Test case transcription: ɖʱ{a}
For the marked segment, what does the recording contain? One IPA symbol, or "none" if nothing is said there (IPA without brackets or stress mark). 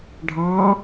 ɑ